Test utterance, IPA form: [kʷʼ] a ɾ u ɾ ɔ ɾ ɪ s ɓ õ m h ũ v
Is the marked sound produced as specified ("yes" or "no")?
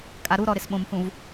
no